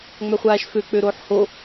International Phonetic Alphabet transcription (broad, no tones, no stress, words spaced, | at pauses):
ŋ͡mœχʷaːʃfø k͡pøɾoːħho